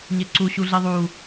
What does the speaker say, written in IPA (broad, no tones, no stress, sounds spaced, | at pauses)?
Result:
ɲ e ǀ u ɕ u ɮ i ðˤ u